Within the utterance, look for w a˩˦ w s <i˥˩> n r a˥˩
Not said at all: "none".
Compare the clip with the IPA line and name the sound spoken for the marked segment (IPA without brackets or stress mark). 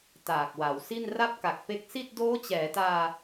i˥˩